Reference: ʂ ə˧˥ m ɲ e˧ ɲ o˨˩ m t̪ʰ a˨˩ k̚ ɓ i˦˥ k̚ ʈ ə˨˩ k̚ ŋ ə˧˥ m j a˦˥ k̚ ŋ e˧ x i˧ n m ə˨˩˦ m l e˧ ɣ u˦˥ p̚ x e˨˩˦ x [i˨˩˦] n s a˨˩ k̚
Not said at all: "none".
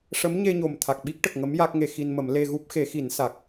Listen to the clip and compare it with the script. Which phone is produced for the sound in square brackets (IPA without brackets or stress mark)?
i˨˩˦